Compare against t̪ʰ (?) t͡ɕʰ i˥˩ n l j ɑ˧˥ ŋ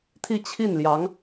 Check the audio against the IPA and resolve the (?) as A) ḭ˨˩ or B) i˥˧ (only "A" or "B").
B